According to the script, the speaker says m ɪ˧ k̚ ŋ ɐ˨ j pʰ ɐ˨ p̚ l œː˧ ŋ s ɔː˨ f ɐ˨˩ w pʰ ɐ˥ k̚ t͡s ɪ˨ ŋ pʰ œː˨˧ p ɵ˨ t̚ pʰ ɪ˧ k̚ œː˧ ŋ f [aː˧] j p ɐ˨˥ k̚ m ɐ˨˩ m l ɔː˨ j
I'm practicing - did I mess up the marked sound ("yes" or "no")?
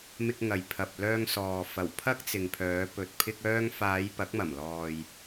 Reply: yes